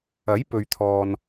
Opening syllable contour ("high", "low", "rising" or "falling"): rising